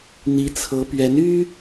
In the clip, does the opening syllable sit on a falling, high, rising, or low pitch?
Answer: rising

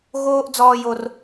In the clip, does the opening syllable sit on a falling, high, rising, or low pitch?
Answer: high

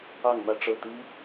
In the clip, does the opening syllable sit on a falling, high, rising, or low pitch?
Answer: falling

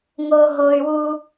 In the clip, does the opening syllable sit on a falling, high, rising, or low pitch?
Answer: high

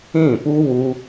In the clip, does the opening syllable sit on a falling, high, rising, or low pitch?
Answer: falling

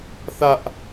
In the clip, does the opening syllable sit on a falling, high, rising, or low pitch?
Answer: high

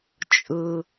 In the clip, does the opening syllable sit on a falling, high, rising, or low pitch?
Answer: high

